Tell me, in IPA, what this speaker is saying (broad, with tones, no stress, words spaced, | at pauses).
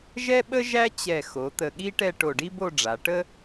ʒɛ˥ɓə˥ʒæ˥ t͡ɕɛ˧˩xo˩˧ t̪ə˧˩ɠi˥ʈɛ˥˧ ʈo˧˩ɖi˥bo˥˧ɖ͡ʐa˩˧ ʈə˥